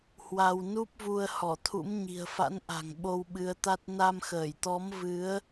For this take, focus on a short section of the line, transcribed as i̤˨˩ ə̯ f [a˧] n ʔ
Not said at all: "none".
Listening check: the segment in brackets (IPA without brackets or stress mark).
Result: a̰˧˥